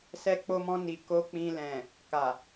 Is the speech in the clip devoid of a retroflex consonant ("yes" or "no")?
yes